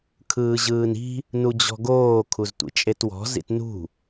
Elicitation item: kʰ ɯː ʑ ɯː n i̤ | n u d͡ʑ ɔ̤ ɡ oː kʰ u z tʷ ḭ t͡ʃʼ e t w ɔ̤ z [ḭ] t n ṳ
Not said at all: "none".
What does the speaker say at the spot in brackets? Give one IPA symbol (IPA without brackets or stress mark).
ḭ